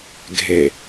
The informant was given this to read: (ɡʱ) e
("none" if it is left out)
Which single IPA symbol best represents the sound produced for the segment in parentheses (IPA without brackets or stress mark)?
ɡʱ